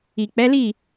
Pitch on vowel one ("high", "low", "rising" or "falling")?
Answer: low